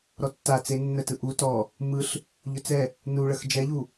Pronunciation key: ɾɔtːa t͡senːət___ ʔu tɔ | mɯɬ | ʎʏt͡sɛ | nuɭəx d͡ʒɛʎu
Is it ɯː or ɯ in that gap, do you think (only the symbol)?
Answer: ɯ